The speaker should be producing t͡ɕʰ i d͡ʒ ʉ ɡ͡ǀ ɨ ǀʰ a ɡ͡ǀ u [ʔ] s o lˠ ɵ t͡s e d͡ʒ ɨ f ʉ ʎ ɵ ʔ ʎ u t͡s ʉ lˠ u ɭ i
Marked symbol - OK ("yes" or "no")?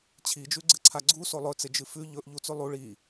no